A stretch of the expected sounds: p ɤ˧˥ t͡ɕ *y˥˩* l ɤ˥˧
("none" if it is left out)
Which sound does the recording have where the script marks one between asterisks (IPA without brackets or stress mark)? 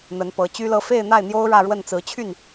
y˥